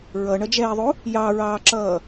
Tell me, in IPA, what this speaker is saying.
ɹ ʌ ɳ ʌ d͡ʒ ɛː ðˤ u | j ɑ ɹ ɑː ǁ ʌː

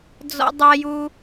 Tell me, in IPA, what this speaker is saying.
d͡z ɔ̰˦ dˤ a˦ j u˦

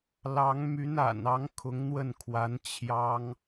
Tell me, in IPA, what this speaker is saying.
l ɑ˧˥ ŋ m y˧˥ n a̰˨˩ n ɑ˧˥ ŋ kʰ ʊ˧˥ ŋ n̪ w ə˥˩ n kʰ w a˧˥ n t͡ɕʰ j ɑ˥ ŋ

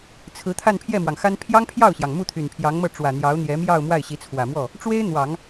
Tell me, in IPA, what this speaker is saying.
t͡sʰ ɹ̩˧˥ t̪ʰ a˥˧ n pʰ j ɛ˥˩ m w ɑ˩ ŋ x a˥ n pʰ j ɑ˥ ŋ pʰ j ɑ˥˩ ʊ̯ ɕ j ɑ˩ ŋ m u˥˩ t̪ʰ y˨˩ n pʰ j ɑ˧˥ ŋ m ɤ˥˩ ʈ͡ʂ w ä˨˩ n̪ j ɑ˧˥ ʊ̯ n̪ j ɛ˧˥ m j ɑ˥˧ ʊ̯ m w a˥˩ ɪ̯ ɕ i˧˥ t͡sʰ w ä˨˩ m w ɔ˥˩ | ʈ͡ʂ w e˥ ɪ̯ n̪ w ɑ˨˩˦ ŋ

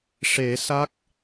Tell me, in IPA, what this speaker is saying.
ʂ e˨˩˦ s a˦˥ k̚

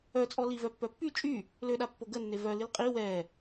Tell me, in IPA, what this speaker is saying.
œ t͡sʼ ɔ l i v œ pː œ pː y t͡ʃʼ y | l ø ɗ a pː o ɡ ə nː e v œ l i l qʼ i w ɛ

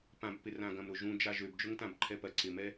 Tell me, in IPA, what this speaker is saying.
p ã b p ɪ r ã ɡ ɐ̃ m ɾ ʊ ʒ ũ d͡ʒ a ʒ ø b d͡ʒ ʊ ŋ t ã b ǃʰ ɛ p ɐ ǀ ɪ m ɛ

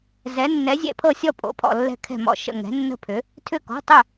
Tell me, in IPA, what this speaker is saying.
z ɛ˩˧ nː ɛ˩˧ zʲ ɛ̰˧˩ pʰ ɤ˧˩ sʲ ɔ˧˩ pʼ o̰˩˧ pʰ ɔ̰˧˩ lː ɛ̤˧˩ kʰ ɛ̤˧˩ m ɔ̰˧˩ ʃ ə̰˧˩ ŋ ɛ̤˩˧ nː ə̤˧˩ pʰ ʏ˩˧ | tʰ ʏ˧˩ k ɔ̤˩˧˩ tˤ ʏ˧˩

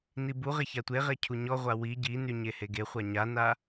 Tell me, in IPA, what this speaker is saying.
n i b u ʁ e ç a tʷ e ʁ e cʰ u ɲ ɔ ʁʷ a w i ɟ i n y ɲ e h e ɡ e χʷ a ɲ a n a

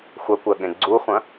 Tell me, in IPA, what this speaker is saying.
xʷ ɐ kʷ ɜ ɠ ẽ ɡ͡ǀ u χʷ ɐ̃

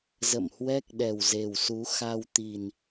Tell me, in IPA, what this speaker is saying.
z ə̰˧˨ m h w ɛ˦˥ k̚ ɗ ɛ˨˩ w z e˨˩ w s u˨˦ x a˧ w t̪ i˨˩ n

